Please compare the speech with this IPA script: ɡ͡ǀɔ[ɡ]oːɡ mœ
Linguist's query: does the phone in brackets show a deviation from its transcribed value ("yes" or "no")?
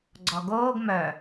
no